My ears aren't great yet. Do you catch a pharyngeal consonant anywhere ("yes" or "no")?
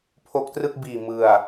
no